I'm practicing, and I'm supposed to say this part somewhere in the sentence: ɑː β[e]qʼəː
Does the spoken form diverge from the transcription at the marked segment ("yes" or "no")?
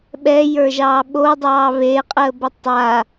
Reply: no